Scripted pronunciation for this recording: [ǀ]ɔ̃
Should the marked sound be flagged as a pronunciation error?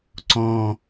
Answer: no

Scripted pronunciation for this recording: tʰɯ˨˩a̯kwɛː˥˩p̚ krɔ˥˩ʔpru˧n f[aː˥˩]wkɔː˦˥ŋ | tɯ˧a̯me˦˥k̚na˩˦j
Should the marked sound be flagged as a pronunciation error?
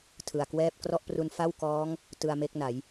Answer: yes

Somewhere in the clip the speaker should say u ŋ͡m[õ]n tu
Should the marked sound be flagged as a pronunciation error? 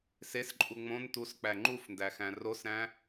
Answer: no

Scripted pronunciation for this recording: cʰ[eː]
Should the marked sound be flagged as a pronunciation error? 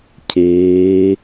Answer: no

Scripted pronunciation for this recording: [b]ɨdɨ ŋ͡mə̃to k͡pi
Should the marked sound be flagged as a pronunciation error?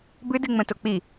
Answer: no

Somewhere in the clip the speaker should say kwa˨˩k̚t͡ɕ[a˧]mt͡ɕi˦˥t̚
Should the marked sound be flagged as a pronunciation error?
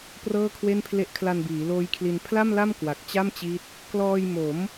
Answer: yes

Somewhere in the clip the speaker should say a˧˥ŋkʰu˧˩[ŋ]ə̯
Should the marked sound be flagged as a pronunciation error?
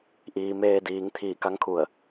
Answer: yes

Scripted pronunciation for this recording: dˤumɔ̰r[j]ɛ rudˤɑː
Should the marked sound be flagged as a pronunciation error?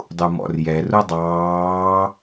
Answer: no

